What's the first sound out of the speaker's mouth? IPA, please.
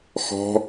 x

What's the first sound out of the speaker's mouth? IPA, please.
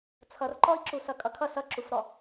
t͡sʰ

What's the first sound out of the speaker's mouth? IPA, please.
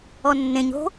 ɔ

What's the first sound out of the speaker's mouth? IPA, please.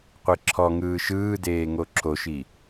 qʷ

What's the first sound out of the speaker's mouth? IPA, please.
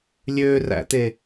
lʲ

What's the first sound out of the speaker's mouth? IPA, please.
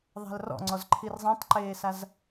ðˤ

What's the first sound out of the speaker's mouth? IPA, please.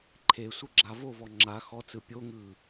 ǃʰ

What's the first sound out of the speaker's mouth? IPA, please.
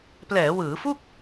p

